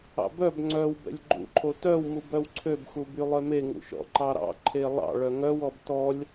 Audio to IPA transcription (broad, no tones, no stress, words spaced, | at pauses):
ɑ̰bœb ŋ͡ǀœw bɛ̰lʲɡ͡ǃṵǃʰo tœwmubœw ǀʰøbxu bylˠœme ŋṵʃɔ̰ǃɑɾɑ̰ ǃʰelˠɑ̰ ɭœŋœwɔb tɔlʲ